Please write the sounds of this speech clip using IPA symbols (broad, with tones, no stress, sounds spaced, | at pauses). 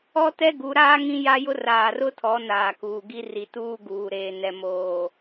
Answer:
ɔ˦ t ɛ˦ ɡ u˨˦ ɾ aː˦ ŋ ĩ˦ j a˦ j ʊ˦ r aː˨ r ʊ˦ tʰ ɔ˨˦ n aː˨ k uː˨ ɡ i˦ r i˨ t uː˦ ɡ uː˨ ɾ eː˨ n ɛ˨ m oː˨